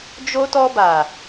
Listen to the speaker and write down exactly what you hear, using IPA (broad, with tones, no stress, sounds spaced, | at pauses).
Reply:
d͡ʒ o˧ t ɔ˧ b a˨